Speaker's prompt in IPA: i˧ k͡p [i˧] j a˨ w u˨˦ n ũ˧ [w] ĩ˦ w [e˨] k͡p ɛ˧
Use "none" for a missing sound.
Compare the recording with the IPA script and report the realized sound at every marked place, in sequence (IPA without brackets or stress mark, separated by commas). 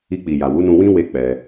i˨, w, e˦